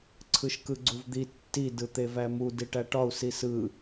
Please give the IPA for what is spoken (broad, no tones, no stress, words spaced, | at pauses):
ǀʰɯʃkɯɡ͡ǀuvd̪i tːi dɯt̪evæmu diʈæʈɒu̯ sisɯ